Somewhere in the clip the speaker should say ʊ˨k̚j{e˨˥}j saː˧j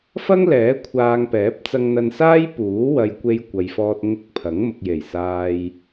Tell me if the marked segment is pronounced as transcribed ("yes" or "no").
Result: no